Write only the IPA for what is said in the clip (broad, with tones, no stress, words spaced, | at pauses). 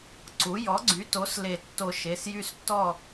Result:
ǀu˩˥ jɔ˩˥ɡ͡ǀy˩˥to˩˥s le˨˩˦tːo˨˩˦ ʃe˩˧˩sjy˦stːɔ˥˨